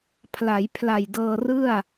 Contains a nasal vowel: no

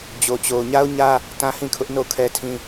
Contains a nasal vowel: yes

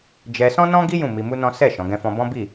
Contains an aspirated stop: no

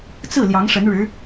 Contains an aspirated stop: no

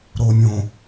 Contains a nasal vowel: yes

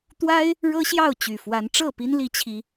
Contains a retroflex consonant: yes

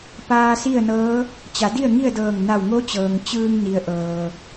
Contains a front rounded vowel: no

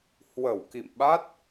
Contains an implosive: yes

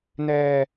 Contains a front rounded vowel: no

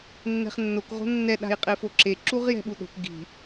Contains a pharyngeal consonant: no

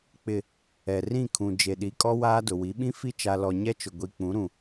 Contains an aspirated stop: yes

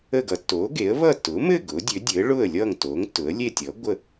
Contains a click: no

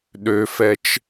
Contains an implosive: yes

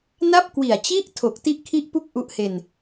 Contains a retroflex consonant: no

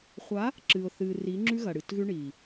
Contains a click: yes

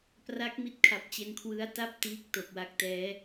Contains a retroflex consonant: no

